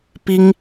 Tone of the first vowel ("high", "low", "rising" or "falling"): high